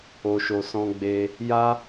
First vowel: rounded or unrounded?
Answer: rounded